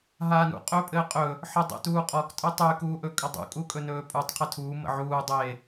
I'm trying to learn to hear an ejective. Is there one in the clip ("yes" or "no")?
yes